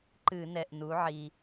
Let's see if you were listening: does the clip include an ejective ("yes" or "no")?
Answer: no